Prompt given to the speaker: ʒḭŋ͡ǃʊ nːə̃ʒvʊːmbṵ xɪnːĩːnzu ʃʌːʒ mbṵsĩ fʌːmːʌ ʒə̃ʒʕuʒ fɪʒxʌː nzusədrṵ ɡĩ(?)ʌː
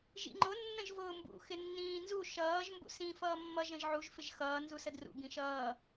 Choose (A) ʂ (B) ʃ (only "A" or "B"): B